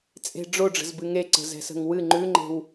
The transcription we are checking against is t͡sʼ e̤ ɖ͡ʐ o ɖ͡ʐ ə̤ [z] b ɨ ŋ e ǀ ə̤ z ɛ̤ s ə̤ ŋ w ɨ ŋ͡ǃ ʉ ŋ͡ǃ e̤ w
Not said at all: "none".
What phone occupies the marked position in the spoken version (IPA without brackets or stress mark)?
z